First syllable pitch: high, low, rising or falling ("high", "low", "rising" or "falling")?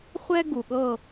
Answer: high